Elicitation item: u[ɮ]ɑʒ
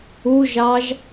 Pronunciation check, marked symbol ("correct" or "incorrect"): incorrect